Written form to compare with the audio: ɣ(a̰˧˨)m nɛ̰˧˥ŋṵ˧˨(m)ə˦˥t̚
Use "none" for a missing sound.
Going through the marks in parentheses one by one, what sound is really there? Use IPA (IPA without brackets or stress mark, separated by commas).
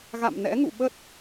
a̰˧˨, ɓ